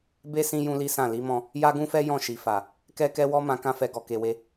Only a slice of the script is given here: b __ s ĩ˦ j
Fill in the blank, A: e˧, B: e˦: B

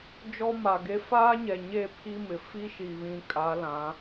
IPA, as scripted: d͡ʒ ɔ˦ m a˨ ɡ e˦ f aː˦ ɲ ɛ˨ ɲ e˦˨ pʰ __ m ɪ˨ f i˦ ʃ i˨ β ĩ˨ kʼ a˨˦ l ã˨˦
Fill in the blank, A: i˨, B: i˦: B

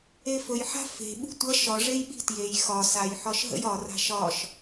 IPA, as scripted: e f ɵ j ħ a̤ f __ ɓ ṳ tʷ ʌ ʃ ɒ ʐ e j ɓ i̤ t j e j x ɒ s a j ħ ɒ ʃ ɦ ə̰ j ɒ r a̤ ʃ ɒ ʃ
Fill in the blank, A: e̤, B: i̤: A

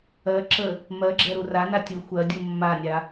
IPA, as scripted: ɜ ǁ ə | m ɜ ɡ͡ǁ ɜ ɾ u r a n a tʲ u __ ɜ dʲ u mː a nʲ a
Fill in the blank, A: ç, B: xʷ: B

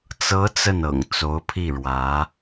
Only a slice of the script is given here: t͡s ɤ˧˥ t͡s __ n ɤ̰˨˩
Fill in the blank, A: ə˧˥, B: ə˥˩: B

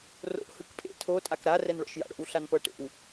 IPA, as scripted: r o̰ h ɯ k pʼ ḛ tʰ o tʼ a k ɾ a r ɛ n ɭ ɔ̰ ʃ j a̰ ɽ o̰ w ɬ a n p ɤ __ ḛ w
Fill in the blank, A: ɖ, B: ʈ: B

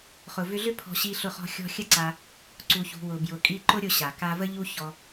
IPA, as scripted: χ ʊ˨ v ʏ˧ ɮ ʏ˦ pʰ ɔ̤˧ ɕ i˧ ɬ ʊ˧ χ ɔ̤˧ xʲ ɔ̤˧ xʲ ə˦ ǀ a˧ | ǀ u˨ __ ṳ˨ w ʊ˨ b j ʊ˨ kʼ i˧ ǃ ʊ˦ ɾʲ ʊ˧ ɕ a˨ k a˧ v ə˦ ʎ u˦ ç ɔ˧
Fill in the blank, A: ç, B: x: A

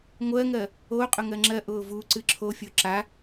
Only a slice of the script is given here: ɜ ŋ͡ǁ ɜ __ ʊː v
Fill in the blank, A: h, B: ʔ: B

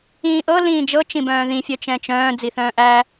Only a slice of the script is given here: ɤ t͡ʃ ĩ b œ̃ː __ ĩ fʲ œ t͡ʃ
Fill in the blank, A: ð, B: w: A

